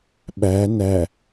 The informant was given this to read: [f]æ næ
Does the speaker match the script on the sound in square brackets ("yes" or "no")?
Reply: no